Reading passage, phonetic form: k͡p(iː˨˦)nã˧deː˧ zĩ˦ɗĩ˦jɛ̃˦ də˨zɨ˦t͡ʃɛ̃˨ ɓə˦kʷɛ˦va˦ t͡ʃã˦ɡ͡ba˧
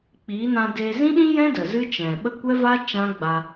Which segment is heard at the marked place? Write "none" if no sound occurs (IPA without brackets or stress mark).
iː˨˦